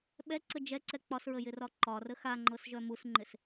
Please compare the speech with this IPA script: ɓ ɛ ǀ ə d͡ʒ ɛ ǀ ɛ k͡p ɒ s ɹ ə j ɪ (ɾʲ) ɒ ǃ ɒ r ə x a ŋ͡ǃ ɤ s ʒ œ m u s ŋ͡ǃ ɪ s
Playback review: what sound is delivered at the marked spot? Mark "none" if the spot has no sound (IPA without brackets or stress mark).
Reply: r